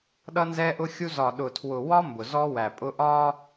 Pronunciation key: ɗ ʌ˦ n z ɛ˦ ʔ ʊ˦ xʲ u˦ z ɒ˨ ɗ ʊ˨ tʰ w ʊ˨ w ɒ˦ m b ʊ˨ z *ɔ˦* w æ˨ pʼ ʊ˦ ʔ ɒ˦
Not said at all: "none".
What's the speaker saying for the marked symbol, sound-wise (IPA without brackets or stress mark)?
ɔ˦